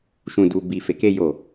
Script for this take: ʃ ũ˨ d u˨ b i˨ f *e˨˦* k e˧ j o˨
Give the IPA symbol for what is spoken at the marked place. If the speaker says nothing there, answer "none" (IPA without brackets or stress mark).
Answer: e˨˦